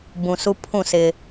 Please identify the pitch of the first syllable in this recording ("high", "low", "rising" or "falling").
low